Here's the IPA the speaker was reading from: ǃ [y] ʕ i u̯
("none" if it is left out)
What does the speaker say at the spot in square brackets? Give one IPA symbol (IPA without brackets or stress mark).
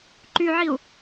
y